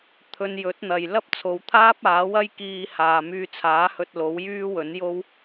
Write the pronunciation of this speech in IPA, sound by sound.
t̪ʰɵ˧njɵ˨˥t̚n̪ɐ˨j lɐ˥p̚t͡sʰo˨˧wt̪ʰaː˥p̚ aː˨˥wɐ˥jkiː˧ haː˨myː˧t͡sʰaː˨˥hɵ˧t̚ lo˨˥wjyː˥wɵ˨˥njo˥w

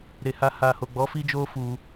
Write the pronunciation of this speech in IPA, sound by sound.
ɾe˨ha˧ ha˨ ho˨ɡ͡bɔ˨˦ fi˦d͡ʒo˦ fu˧

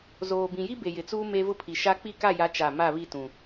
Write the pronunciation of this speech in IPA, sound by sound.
zoː˨bĩ˨ji˦ be˨jɪ˨t͡suː˦ me˦vʊ˦ pʰi˨ʃa˦ k͡pi˦˨ka˦˨ja˨˦ t͡ʃa˦˨ ma˦˨βi˦˨tũ˨

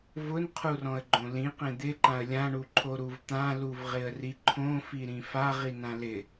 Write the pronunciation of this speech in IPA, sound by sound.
vʊnqʰurɔ̃ə̯ɡ͡ǃõ lĩqẽ d̪ɪǃãə̯ lʲãɳuǃʰo ɾuvt̪ãluvʁɪə̯ riǃʰõfi ɾĩfa ʁinãlɪ

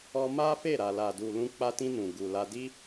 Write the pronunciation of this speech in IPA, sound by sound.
ɔ˦ ma˦fe˦˨ ɾa˨la˨du˨ lũ˧k͡pa˧tĩ˧ nũ˨ ɡu˨la˧di˦

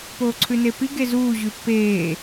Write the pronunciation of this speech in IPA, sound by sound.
poːǀʰʉnepi ɡezuː ʑʉpːeː

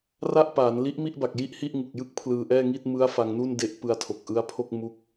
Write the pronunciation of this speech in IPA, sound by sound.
ra˥˩ʔpaː˩˦n li˦˥ʔmi˥˩ʔba˨˩k̚ ji˥˩ʔhi˥˩ʔŋu˨˩k̚jɯ˥˩k̚ pʰlɯː˧ʔɛː˥˩ŋi˥˩t̚ mɯ˦˥a̯ fa˧ŋnu˥˩nde˦˥ʔ pɯ˧a̯tʰo˨˩k̚ʔɯ˦˥a̯pʰo˥˩k̚ mu˦˥k̚

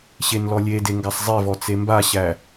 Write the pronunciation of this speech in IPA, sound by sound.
ɕenlɔlʲede ŋɡasˤzˤevɔ t͡sembaɕæ

